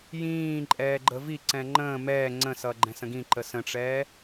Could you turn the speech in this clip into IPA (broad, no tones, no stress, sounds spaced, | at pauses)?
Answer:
j ĩː ǃʼ ɛː ɡ͡ǃ ə v i ǀ ɛ̃ ŋ͡ǃ ə̃ː m ɛː ŋ͡ǀ ə̃ s ʌ ɡ͡ǃ ɛ̃ s ə̃ ɡ ĩ ǃ ə s ə̃ ʈ͡ʂ ɛː